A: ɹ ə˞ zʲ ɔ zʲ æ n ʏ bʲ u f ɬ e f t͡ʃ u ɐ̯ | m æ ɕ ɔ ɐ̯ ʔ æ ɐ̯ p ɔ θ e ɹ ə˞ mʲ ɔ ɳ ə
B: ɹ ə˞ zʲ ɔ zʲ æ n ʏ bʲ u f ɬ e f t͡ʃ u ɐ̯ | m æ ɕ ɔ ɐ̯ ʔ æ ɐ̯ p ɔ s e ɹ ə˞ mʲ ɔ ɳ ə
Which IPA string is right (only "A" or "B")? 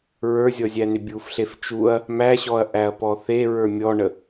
A